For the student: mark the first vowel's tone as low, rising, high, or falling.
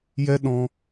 high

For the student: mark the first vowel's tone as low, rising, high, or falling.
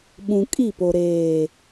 low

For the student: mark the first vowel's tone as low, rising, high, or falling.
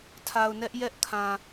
low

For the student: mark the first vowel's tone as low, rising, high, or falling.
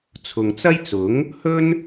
low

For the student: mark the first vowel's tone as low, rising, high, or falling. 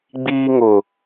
high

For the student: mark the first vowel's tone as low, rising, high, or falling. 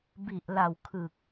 low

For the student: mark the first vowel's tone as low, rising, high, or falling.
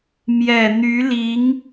low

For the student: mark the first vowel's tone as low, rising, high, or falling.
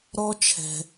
high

